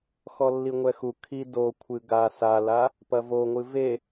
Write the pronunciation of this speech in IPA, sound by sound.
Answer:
xɔlːiŋʷɛxu kʰi do kʷʰɨɡa sala | pɐvoŋʷɨ ve

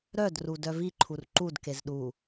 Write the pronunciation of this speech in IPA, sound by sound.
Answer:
ɾœd rudœviǃʰur ǃudkez ɗu

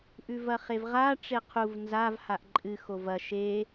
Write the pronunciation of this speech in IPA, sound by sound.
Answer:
ʔʉvɐχevʁa ʈ͡ʂeqʰuv nzav haʔǃʼɨ xovɐ ʃe

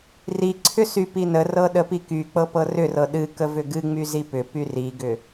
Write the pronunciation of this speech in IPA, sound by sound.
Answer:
riǀʰʏ sypinərɤ ɗəpikyk͡pɤ pɤrʏrɤ ɗɨkə vʏɡɨŋ͡my zipʏpy riɡʏ

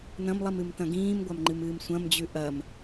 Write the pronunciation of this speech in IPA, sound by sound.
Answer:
nɐ̃mlˠimɨmtɐ̃ ɡĩːmɡʷamŋ͡ǃɨmɨːm sʷɐ̃md͡ʑʉ ʔɐm

